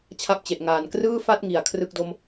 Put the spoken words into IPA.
t͡ɕʰa˥˩p̚t͡ɕe˨˩ʔŋaː˨˩n krɯː˥˩fa˥˩t̚ŋi˨˩a̯ kʰrɯ˥˩k̚do˦˥m

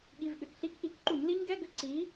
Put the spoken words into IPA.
ɠi˩˧˩vɠʏ˩˧˩kɬi˧˥˧kʔi˨˥k ǃu˧˩˧ɲli˦˥ɲɡɛ˧˥˧ ɡʏ˦˥ǀi˨˥

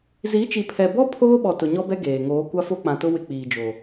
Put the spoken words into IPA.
zi˨˦t͡ʃi˨pʰɛ˨bɔ˦ pʰoː˦ɓɔ˨ tʊ˨ɲɔ˦bɛ˦ ɡeː˨ ŋoː˨˦ kʷa˦fo˦k͡pã˨tʊ˦ wɪ˦k͡piː˨d͡ʒo˨

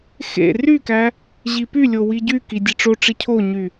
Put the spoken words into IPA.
xḛ rykæ | ʑipylʲo wiɟyki dʲeʈ͡ʂoʈ͡ʂi cʰoɲy

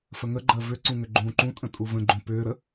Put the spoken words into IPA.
fəŋəɡ͡ǃəː vʏǀũ ŋʏɡ͡ǃũːǃũtʼə̃ tʼuvə̃ɡ͡ǃũ pʏːɾə

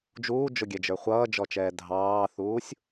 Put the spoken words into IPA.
d͡ʒuːd͡ʒʊɡʲɛd͡ʒə˞ χʷʌːd͡ʒɔt͡ʃɛː dʱɑːθuːsʲ

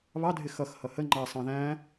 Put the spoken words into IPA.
βɑdʱɪ xʌxhʌ hə ŋ͡ǃɑsˤɑ̃ ðæ̃

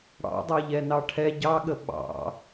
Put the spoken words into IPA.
ɽɑ̰dˤɤʎɛ nɑʈʰɛ ɟɑɠə ɓɑ̰

